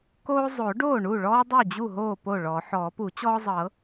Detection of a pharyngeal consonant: present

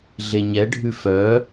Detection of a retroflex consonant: present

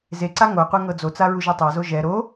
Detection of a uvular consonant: present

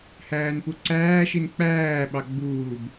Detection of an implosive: present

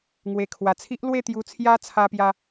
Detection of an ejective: absent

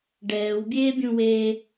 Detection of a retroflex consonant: present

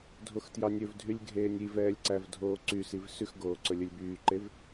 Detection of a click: present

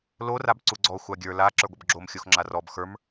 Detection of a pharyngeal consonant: absent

